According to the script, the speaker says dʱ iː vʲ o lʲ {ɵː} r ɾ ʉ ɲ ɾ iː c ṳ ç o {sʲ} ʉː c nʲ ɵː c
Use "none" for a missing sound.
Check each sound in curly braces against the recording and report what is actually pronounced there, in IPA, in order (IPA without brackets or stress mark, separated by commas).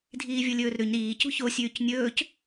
ɵː, sʲ